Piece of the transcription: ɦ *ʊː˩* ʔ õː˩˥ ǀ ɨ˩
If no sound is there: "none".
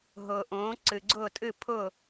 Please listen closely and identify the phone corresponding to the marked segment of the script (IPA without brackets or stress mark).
ʊː˩